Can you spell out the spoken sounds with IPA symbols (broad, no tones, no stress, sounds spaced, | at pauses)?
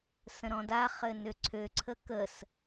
s ə̃ ɾ ɔ̃ d a χ ɘ n ø ǀʰ ø ǀʰ ə k ə s